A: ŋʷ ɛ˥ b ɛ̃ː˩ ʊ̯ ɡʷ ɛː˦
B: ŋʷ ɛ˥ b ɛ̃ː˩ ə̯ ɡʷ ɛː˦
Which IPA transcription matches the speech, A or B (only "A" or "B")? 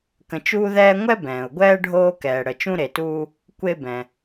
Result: A